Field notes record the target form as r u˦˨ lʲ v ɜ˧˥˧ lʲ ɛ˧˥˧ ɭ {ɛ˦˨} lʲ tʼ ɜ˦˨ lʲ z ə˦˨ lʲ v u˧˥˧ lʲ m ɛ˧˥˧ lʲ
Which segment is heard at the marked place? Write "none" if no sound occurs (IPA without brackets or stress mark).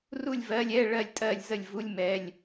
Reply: ɜ˦˨